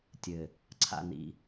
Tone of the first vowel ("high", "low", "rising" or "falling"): low